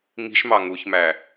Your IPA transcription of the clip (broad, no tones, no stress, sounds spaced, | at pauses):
ŋ i̤ ʃ m ɑ ŋ u ç m æ